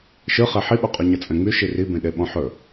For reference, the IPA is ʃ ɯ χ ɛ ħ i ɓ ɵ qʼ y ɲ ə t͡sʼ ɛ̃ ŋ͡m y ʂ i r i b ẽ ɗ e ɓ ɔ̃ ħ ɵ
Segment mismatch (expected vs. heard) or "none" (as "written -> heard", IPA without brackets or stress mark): ʂ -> ʃ